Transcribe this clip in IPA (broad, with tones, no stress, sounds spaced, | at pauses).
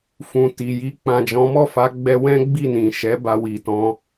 f ũ˨ t i˨ j i˧ k͡p ã˨ d͡ʒ ɔ̃˨˦ m ɔ˦˨ f a˨˦ ɡ͡b ɛ˧ w ɛ̃˦ ɡ͡b i˦˨ n ĩ˨ ʃ ɛ˨˦ b a˧ w i˨ t ɔ̃˧